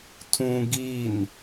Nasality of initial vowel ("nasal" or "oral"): nasal